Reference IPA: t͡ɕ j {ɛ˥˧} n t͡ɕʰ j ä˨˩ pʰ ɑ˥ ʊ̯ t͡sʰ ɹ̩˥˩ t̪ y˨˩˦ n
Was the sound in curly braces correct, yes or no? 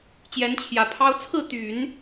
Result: no